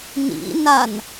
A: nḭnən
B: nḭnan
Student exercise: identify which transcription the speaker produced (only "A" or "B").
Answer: B